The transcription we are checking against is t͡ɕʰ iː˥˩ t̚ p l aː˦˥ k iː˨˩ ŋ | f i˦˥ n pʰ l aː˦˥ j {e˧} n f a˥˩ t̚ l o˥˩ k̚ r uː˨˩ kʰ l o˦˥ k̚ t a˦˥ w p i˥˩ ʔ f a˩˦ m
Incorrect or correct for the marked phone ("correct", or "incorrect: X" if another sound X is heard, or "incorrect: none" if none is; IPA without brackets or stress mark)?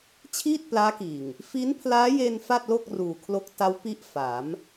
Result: correct